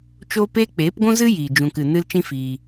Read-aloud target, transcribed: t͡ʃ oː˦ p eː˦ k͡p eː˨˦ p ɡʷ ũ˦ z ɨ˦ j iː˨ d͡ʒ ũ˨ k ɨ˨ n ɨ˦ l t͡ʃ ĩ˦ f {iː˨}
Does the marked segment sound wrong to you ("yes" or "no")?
yes